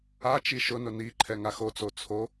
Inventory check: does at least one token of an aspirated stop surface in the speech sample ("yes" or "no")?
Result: yes